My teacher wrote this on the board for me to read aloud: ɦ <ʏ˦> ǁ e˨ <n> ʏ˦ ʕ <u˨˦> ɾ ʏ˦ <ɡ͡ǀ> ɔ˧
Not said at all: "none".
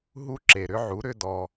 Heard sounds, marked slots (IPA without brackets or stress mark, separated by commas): u˦, ɾ, u˨˦, d